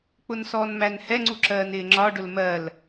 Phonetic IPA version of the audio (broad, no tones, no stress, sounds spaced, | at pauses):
k͡p ʊ n s ɔː n m æ n h ɛ ŋ͡ǀ u ǁ ɜː n ɪː ŋ͡ǁ ɒ ɖ ʊ l m ɜ l